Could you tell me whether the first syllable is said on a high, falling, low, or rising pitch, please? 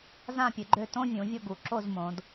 falling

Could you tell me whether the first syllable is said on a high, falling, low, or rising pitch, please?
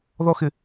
high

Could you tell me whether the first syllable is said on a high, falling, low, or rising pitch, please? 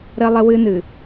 high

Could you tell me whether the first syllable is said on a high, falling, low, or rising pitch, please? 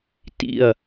falling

